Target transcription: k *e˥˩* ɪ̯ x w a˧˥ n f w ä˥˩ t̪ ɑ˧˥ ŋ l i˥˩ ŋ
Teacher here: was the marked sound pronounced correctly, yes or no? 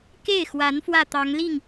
yes